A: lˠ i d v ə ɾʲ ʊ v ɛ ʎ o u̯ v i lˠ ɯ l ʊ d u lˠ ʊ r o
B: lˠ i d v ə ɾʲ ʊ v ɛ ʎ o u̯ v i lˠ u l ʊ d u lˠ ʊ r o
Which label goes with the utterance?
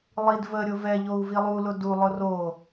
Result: B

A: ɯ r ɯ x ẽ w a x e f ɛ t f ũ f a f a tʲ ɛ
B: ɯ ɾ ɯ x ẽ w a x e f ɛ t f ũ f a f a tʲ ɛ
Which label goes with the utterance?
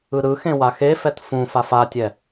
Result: B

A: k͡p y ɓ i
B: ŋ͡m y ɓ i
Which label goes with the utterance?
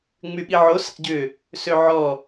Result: B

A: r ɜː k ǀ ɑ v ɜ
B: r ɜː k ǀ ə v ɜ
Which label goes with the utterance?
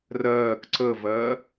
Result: B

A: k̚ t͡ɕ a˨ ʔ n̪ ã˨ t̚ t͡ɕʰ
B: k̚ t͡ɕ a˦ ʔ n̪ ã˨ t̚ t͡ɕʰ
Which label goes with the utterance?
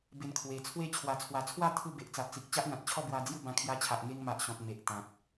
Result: B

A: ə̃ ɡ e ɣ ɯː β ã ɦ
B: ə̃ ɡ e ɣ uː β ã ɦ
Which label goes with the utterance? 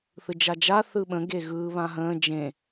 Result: A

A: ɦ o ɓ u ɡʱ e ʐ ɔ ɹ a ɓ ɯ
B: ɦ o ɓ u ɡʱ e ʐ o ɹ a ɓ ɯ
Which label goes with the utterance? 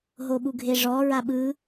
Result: A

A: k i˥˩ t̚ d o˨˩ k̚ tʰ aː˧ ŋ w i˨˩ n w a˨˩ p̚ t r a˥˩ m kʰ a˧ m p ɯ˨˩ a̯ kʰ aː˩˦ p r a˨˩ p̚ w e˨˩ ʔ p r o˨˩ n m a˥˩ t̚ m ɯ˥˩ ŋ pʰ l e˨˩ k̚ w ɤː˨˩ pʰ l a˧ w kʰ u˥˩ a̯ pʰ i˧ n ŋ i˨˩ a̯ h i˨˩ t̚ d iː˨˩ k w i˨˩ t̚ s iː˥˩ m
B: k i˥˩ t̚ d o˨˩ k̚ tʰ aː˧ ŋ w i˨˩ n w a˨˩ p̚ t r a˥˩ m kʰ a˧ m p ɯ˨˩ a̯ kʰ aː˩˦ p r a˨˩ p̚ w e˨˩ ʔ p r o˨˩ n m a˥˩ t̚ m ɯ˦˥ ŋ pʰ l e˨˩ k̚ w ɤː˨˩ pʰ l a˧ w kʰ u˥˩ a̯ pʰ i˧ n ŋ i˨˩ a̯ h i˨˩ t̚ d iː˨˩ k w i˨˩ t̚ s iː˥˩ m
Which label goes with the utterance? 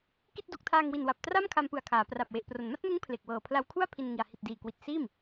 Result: B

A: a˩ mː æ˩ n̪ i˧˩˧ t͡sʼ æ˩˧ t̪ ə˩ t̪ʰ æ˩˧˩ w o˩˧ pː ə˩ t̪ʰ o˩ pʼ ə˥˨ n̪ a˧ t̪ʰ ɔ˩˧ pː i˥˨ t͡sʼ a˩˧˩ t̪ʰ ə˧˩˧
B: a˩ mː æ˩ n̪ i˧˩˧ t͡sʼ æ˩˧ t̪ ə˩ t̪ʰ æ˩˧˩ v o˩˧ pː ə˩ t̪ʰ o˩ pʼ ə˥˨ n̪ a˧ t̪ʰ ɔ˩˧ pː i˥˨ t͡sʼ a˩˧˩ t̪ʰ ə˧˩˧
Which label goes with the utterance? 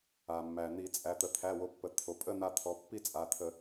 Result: A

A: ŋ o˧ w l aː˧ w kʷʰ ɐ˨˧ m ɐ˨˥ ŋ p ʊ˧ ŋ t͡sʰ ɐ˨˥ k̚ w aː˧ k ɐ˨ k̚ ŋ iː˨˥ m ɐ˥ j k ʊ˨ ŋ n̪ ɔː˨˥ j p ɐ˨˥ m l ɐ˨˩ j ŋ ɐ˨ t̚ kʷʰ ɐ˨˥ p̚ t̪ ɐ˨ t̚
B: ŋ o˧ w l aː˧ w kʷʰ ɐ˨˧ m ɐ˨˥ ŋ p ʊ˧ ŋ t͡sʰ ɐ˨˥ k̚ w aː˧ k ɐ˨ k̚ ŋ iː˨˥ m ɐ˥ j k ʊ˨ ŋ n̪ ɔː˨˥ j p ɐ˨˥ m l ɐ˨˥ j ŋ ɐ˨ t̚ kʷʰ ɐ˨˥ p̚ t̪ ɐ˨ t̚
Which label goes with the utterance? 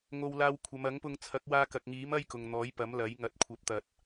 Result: B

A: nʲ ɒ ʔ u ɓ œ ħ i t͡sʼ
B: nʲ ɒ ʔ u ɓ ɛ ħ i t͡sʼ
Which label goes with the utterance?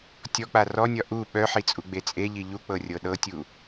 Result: A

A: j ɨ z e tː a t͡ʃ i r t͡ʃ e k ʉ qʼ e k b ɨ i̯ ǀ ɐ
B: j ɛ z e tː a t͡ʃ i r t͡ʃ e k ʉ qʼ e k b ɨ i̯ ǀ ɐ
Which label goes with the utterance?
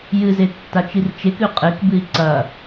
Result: A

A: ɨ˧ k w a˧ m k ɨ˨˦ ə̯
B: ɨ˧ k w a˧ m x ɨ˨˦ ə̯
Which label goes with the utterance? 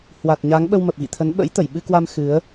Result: B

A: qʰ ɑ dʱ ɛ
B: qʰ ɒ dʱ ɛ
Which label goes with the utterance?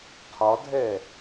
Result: B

